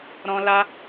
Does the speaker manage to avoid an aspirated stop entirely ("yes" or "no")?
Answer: yes